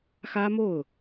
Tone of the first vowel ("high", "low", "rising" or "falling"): high